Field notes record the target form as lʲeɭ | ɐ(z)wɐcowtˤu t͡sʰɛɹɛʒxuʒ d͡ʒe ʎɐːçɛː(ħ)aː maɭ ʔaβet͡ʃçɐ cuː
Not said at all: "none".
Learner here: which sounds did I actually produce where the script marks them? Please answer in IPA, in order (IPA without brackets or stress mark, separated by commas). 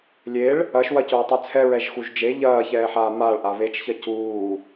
ʃ, ħ